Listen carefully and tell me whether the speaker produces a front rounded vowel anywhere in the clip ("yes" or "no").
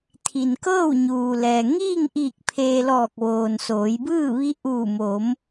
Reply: no